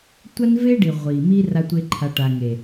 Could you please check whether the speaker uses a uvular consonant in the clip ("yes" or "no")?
yes